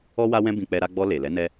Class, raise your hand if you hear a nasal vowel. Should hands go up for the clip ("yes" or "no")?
yes